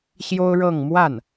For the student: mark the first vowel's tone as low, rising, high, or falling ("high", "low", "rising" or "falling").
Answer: high